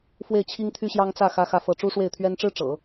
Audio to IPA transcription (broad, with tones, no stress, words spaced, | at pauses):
fwe˥˩ɪ̯ t͡ɕʰi˥ŋt̪ʰy˥ɕjɑ˥ŋ t͡sä˥˩ xä˥xä˥˧fɤ˥˩ ʈ͡ʂu˥ʂwe˥˩ɪ̯t̪ʰɥɛ˥n ʈ͡ʂɻ̩˥ ʈ͡ʂɤ̰˨˩˦